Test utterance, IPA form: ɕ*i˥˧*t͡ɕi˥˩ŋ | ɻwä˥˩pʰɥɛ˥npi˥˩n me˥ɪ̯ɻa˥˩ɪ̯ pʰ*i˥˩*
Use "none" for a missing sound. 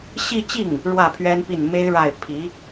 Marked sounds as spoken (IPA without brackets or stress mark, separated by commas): i˥˧, i˧˥